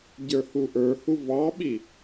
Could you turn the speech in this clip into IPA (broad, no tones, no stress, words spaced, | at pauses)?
ɟə˞huʔə˞hu vɑɓi